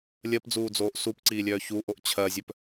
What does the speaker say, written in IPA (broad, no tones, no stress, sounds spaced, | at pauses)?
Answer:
lʲ ɜ p d͡z uː d͡z oː ʔ s u p ǀ iː lʲ œː ç uː ʔ o ʔ t͡ɕʰ ɜ zʲ œ p